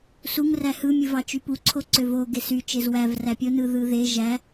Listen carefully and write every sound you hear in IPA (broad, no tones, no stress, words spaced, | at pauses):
suŋ ræhɯ mʲɯvɑt͡ʃypu ǀʰoǀøvo ɡesy t͡ʃezwæv ræpʲo nɯðɯðe ʒæ